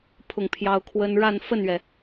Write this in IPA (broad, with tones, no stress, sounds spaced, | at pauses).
pʰ ʊ˥˩ ŋ pʰ j ɑ˥ ʊ̯ kʰ w ə˥ n ɻ a˥˧ n f ə˥˩ n ɥ ɛ˩